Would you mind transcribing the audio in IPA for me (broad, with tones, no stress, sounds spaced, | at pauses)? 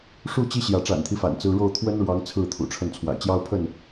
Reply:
ʂ u˥˨ t͡ɕ i˦ ɕ j ä˨˦ ʈ͡ʂ a̰˨˩ n t̪ʰ i˦ f a̰˨˩ n t͡s ɹ̩˦ ɻ o˥˨ ʊ̯ t̪ʰ w ə˦ n ɻ w ɑ˨˦ ŋ t͡sʰ ɹ̩˥˨ t̪ʰ ṵ˨˩ ʈ͡ʂʰ ə˥˨ n t͡sʰ w a̰˨˩ ɪ̯ t͡ɕ j ɑ˦ ʊ̯ pʰ ə˥˨ n